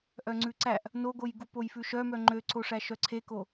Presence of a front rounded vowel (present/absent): present